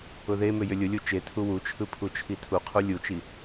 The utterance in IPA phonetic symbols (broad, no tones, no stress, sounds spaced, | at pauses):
ʊ ð e m ʏ j ʏ lʲ ʊ lʲ u t͡ʃ e tʰ u w u t͡ʃʰ ɯ pʰ u t͡ʃʰ i tʰ u qʰ u lʲ u t͡ʃ i